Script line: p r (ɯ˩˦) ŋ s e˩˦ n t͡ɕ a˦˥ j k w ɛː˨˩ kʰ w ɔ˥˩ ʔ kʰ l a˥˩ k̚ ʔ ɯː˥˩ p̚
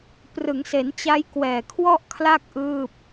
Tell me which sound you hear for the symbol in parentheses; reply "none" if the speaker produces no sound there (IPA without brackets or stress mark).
ɯ˩˦